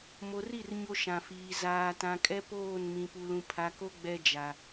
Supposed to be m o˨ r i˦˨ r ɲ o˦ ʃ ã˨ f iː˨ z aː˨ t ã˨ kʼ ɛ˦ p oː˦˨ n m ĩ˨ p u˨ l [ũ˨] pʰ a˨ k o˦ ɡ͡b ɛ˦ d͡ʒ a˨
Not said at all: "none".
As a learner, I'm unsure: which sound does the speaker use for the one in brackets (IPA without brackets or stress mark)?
ũ˨